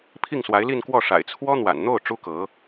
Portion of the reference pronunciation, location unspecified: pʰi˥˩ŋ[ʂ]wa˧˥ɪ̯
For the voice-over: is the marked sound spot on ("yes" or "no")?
no